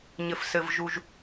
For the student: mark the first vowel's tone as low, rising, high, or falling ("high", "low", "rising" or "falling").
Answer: low